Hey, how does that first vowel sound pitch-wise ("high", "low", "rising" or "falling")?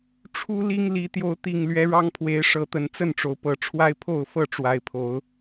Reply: high